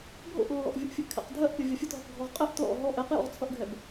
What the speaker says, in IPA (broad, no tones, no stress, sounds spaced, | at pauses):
bʱ o̰ ʔ lː ɔ̰ ʔ vʲ u ʔ fʲ ɘ ʔ kʰ ɛ̰ q dʱ ɜ ʔ pʲ ʌ vʲ ɐ fʲ ɘ t ɦ o q ɡʱ ɔ ʁ qʼ ɘ ʔ t l ɔ̰ ɦ ɔ ʔ ɛ q j ɔ̰ ʁ t͡sʰ ʌ ʔ ɡʱ ɛ b